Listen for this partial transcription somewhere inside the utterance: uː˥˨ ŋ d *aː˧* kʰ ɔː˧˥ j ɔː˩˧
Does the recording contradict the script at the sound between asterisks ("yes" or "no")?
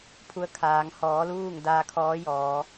no